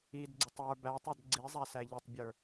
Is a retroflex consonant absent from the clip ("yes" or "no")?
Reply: yes